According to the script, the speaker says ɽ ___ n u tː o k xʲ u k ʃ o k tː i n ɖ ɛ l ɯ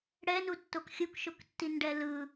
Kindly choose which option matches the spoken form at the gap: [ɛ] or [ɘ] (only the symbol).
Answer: ɛ